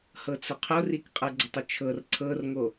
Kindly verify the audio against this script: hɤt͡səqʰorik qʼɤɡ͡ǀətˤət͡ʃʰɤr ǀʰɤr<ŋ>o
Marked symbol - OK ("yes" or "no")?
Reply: yes